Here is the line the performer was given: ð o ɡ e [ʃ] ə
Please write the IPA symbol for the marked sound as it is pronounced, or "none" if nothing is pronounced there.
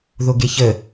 ç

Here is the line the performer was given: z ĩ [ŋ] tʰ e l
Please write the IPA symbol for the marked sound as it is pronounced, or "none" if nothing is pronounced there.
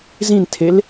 n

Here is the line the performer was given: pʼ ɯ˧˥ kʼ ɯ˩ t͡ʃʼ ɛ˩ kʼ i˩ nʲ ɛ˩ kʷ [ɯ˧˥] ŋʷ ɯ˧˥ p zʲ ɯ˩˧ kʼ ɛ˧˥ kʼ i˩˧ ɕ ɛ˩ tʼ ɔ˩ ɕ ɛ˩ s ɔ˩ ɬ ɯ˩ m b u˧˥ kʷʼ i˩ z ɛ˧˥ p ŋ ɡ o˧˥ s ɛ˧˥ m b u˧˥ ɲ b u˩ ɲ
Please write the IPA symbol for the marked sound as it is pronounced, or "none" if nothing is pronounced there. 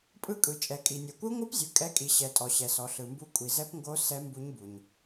ɯ˧˥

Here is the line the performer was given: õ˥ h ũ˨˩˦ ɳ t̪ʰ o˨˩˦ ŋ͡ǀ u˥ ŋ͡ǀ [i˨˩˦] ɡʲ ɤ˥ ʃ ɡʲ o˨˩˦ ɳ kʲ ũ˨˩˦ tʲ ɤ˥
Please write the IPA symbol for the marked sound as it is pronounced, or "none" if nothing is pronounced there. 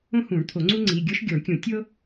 i˩˧˩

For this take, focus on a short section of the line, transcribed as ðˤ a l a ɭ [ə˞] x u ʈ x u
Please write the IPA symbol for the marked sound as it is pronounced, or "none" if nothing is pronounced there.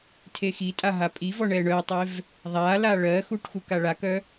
ɜ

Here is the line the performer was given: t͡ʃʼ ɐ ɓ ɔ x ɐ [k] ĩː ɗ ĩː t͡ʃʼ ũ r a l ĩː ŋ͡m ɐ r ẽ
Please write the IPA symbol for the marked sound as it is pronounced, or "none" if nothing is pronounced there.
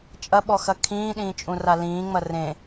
kʰ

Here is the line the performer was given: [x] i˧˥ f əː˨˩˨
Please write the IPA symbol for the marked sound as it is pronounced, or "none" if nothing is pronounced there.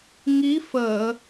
ŋ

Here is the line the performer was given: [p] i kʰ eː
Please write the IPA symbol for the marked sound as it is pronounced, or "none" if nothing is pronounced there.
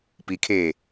p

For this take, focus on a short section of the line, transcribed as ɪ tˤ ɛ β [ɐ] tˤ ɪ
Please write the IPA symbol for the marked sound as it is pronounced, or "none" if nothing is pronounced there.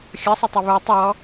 ə˞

